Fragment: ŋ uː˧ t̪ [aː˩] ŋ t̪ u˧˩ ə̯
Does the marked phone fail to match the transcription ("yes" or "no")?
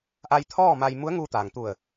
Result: no